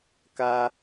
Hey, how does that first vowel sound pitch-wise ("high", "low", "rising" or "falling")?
high